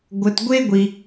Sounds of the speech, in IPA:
ɡʷ ə˧ t ɡʷ e˥ ɡʷ i˧

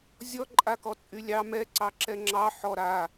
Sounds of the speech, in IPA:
zʲ ɔ ǃʼ a k ɔ t͡sʼ y lʲ ɑ m ɛ ǀ ɑ ǁ ɛ ŋ͡ǁ ɑ ħ ɔ ɾ a

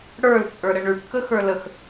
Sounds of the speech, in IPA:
ɽ ə˞ l t͡sʼ ə˞ ɾ ə ɳ ʉ ʈ k ə x ə˞ l ə x

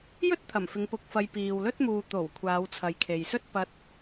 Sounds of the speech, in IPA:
j ɵ˥ t̚ t̪ʰ ɐ˨˩ m f ɪ˨˧ ŋ p ʊ˧ k̚ f ɐ˧ j p iː˨ w l ɵ˥ t̚ m uː˨ t̪ o˨˩ w kʷʰ aː˨˧ w t͡sʰ ɐ˨ j kʰ e˨ j s ɵ˥ t̚ p ɐ˧ t̚

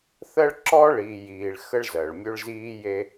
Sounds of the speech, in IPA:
θ ɜ˦ ɭ ǁ ɔː˦ ɭ iː˨ j iː˨ ɭ x ə˦ ɭ z ɜ˨ ɭ mʲ ø˦ ɭ z iː˦ j e˦

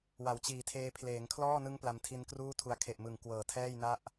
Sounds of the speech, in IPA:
w a˩˦ w t͡ɕ iː˨˩ tʰ eː˧ pʰ l eː˩˦ ŋ kʰ l ɔː˥˩ n ɯ˦˥ ŋ p l a˧ m tʰ i˦˥ n k r uː˥˩ tʰ u˧ a̯ kʰ e˨˩ ʔ m ɯ˨˩ ŋ k w ɤː˨˩ tʰ ɛː˥˩ j n a˥˩ ʔ

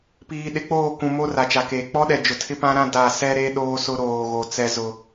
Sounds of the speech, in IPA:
p iː˨ ɗ ɪ˨˦ k͡p oː˦˨ k ũ˨ m o˦ r a˨ t͡ʃ a˨ k eː˨ k͡p ɔ˦ ɗ ɛ˨ d͡ʒ ʊ˨ tʰ ɪ˦ p ã˦ ɾ ã˦ d a˦˨ s ɛ˦ ɾ e˦ ɗ oː˦ s ʊ˦ ɾ oː˨ ɣ o˨ t͡s ɛ˦ z ʊ˦

